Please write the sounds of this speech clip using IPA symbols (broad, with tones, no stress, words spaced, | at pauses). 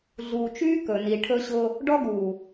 ɮuː˨t͡ʃyː˦ kɵ˨ ni˨ʈʰɵ˦ ɕʊː˦ | ɖɔ˦ɡuː˨